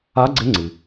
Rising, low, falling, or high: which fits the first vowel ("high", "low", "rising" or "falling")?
rising